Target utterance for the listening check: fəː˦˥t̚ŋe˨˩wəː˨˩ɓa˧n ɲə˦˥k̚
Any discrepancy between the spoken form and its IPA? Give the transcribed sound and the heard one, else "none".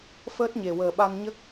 ŋ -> ɲ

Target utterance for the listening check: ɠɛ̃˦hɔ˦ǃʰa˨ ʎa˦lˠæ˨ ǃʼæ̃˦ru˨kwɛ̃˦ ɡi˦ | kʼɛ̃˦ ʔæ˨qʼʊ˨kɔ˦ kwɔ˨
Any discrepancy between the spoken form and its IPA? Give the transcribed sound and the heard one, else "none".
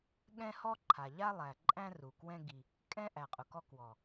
none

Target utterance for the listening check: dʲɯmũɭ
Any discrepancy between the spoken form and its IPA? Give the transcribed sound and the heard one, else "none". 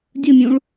m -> mʲ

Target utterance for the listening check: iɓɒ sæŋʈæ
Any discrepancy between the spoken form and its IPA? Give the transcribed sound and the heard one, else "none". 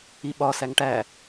none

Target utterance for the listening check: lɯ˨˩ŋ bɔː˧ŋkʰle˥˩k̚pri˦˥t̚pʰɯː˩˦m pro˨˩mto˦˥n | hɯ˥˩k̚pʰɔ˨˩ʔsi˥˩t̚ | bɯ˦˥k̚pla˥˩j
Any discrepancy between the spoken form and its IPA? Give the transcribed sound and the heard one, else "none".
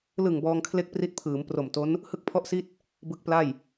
ɔ˨˩ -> ɔ˥˩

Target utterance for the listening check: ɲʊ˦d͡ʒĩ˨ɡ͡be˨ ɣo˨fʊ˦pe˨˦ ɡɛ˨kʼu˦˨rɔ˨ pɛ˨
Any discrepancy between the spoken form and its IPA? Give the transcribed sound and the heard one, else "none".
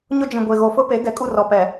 ɡ͡b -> ɡʷ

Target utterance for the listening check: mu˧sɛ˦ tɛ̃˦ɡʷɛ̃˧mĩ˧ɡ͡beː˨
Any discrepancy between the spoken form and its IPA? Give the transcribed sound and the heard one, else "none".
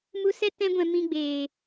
none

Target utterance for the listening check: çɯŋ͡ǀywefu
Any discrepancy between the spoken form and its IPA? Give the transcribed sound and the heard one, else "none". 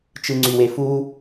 ç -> t͡ʃ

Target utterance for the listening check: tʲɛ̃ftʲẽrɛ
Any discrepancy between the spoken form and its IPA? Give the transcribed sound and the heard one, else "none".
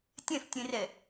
none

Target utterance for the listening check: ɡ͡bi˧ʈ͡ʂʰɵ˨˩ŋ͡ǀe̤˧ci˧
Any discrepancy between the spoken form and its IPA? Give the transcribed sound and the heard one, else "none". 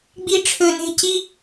ŋ͡ǀ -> n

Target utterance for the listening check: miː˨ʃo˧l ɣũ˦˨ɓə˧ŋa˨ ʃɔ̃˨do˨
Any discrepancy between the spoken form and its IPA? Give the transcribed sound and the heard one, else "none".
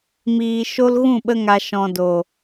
none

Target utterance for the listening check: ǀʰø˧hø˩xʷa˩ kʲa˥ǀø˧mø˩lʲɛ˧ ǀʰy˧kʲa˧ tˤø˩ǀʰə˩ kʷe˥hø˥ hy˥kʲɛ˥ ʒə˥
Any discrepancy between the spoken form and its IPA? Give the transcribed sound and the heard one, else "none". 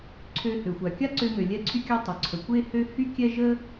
none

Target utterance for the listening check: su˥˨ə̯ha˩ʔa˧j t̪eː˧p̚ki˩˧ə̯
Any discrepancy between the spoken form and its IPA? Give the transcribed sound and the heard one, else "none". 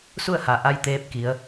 none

